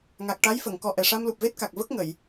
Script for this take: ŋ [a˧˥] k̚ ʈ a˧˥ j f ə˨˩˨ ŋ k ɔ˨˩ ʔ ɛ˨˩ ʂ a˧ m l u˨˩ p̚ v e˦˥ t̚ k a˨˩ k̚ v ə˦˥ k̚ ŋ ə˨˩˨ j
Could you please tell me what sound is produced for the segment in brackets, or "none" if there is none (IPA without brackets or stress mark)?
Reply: a˨˩